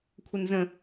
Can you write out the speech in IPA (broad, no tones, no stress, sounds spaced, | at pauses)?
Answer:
kʷʰ ə n z ə̃